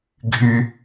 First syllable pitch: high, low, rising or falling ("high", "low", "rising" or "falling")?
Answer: high